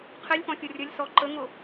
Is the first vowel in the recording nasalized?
no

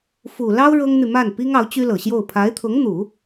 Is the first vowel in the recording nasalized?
no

